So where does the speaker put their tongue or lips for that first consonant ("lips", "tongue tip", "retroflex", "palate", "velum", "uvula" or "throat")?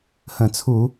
throat